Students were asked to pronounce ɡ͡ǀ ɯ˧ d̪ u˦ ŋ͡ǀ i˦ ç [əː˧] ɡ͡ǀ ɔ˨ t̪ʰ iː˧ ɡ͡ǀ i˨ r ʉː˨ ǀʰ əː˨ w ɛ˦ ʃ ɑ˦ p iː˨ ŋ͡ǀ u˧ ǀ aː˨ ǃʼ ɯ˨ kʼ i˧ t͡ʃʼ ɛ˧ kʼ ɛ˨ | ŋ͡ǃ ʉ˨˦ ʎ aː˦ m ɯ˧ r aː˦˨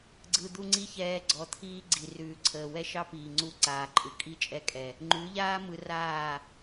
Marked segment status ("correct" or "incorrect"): incorrect